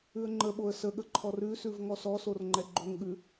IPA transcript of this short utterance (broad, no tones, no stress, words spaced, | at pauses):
ʉə̯ŋ͡ǃəɓoə̯ səɠə ǃʰɔrʉsʉv ŋɔsɔsor ŋ͡ǃɛɡ͡ǃoŋɠʉ